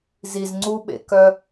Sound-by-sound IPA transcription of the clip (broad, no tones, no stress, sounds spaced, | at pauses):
z i z ŋ͡ǀ u ɓ ḛ k œ